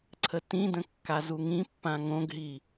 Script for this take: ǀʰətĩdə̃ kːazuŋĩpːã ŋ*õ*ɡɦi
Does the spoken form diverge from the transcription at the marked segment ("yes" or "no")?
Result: no